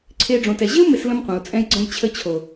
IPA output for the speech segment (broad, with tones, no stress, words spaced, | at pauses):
ǀʰe˦ɖ͡ʐõ˧tɛ˧ ʑɪ˦u̯ mɪ˧slə̃˧mqʷɛ̃˨u̯t͡sʼɛ̃˧j ɡ͡ǀə̃˧jt͡ɕʰə˧t͡ɕʰo˨